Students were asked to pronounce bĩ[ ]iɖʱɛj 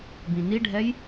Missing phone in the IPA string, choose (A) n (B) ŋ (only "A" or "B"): A